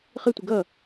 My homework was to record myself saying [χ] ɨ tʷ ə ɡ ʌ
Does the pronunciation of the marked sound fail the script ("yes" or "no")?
no